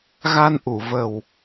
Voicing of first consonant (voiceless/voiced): voiced